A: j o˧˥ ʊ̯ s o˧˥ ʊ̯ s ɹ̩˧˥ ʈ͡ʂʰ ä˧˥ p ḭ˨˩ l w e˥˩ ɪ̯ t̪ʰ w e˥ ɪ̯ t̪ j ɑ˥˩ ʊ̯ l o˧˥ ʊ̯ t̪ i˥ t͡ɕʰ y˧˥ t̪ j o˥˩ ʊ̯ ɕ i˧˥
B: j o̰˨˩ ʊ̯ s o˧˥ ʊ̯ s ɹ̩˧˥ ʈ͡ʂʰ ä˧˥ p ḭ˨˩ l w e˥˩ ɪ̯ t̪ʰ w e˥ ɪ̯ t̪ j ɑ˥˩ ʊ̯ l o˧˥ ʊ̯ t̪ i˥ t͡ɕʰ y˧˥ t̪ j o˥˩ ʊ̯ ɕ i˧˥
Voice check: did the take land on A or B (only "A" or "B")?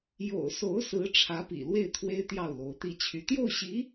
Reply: B